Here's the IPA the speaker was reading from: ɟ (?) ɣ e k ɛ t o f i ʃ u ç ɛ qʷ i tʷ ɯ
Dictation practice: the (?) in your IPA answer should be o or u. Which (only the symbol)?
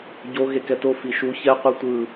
o